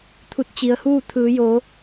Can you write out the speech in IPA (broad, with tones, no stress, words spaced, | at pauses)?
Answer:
t̪ʰu˧t̚t͡ɕi˩˧ə̯huː˥˨ t̪ʰɯː˩˧joː˩˧